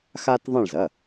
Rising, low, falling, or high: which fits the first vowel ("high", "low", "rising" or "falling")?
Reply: high